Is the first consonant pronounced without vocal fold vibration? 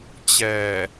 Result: yes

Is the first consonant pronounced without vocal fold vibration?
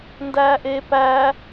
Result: no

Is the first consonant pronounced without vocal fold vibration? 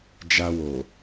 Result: no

